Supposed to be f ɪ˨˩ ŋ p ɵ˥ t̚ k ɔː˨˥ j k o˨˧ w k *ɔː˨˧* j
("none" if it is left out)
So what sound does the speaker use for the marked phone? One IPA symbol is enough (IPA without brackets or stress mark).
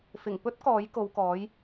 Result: ɔː˨˥